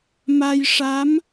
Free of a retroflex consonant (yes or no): no